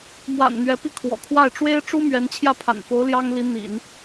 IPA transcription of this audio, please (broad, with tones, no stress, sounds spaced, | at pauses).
m w a̰˨˩ n n̪ ɥ ɛ˧˥ p i˥˩ kʰ w ɔ̰˨˩ kʰ w a˥˩ ɪ̯ ʈ͡ʂ w e˥ ɪ̯ ʈ͡ʂ u˥ m ɥ ɛ˧˥ n t͡ɕʰ j ä˥˩ pʰ a̰˨˩ n f o˧˥ ʊ̯ l j ɑ˥ ŋ l i˧˥ n̪ ḭ˨˩˦ n